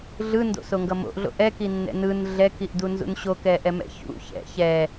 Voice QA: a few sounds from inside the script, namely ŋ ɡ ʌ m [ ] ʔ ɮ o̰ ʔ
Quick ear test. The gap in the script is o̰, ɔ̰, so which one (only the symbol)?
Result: o̰